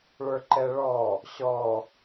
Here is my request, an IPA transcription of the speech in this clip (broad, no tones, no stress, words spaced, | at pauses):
ɭə˞ǃɛɭɔ | ɕɔ